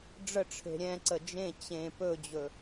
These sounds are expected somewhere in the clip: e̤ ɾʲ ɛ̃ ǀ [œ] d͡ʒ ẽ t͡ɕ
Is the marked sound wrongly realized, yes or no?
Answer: yes